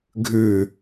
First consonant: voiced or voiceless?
voiced